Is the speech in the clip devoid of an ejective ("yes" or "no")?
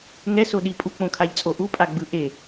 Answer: no